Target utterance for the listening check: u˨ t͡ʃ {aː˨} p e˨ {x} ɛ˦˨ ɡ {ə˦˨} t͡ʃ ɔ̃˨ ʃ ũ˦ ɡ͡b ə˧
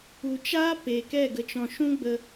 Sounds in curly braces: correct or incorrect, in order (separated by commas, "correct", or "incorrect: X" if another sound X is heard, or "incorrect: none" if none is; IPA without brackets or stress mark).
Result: incorrect: aː˦, incorrect: k, incorrect: ə˨